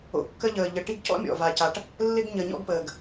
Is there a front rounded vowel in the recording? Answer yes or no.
no